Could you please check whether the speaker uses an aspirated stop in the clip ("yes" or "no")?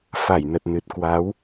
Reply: no